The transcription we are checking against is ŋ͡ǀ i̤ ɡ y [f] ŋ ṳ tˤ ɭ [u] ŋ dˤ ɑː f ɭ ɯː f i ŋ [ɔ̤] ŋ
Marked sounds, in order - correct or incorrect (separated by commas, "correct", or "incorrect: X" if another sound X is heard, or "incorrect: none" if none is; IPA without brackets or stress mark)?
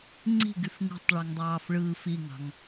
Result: correct, incorrect: y, incorrect: ɑ̤